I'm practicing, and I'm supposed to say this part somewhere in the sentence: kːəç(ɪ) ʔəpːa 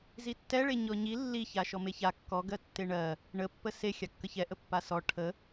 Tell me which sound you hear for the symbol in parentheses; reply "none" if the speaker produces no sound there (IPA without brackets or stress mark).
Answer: ɛ